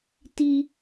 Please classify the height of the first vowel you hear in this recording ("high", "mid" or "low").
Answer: high